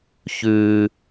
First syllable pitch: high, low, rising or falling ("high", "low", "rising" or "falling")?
high